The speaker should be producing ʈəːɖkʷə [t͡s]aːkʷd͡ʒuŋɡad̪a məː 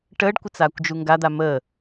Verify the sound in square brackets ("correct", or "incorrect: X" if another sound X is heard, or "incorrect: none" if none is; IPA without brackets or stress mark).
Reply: correct